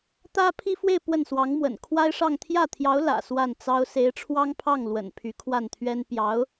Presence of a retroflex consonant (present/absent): present